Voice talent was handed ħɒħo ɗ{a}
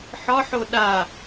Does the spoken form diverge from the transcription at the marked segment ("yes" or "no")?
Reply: no